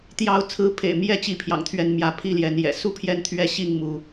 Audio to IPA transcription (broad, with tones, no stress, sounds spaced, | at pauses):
t̪ j ɑ˨˦ ʊ̯ t͡sʰ ɹ̩˨˦ pʰ ḛ˨˩ ɪ̯ m j ɛ˥˨ t͡ɕ i˨˦ pʰ j ɑ̰˨˩ ŋ t̪ʰ ɥ ɛ˨˦ n m j ä˨˦ pʰ i˥˨ l j ɛ˨˦ n j ɛ̰˨˩ s u˥˨ pʰ j ɛ˦ n t̪ʰ ɥ ɛ˦ ɕ i˥˨ ŋ m u˨˦